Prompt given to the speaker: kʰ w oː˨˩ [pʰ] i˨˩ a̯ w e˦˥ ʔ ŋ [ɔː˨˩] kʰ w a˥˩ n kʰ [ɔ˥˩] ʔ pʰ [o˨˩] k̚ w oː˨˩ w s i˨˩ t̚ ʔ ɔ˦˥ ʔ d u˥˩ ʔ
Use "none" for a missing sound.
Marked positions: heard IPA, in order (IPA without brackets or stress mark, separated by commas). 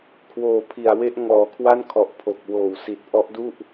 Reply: pʰ, ɔː˨˩, ɔ˨˩, o˨˩